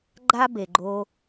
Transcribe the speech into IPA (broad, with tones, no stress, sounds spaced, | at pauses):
ɡ͡ǃ a˥ b e˩ ɡ͡ǃ o˧